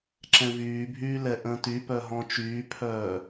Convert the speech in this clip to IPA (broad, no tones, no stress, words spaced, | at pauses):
ǁɛ̃vyːbʱyː lɛʔə̃ːtypœ ɦɔ̃t͡ʃyːpʰœː